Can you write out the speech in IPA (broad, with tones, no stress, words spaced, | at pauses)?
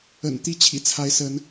ə̰˨˩nt̪i˦ t͡ɕʰḭ˨˩t͡sʰa˨˦ɪ̯ sə˨˦n